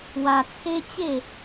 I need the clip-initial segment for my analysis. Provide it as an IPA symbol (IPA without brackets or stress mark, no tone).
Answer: w